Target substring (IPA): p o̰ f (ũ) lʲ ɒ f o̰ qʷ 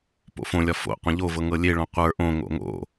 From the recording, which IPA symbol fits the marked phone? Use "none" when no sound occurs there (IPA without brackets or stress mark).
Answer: õ